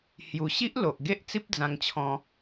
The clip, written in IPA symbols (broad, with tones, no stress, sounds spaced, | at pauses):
h j u˨˩ ɕ i˦ ʔ l o˨ ʔ ɡ e˦ ʔ t͡s i˦ p̚ d͡z ã˧ ŋ t͡ɕʰ ɔ̃˧